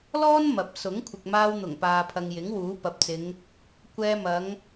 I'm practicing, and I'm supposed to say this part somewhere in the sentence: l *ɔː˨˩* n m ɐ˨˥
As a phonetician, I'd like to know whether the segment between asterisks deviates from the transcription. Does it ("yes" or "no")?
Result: yes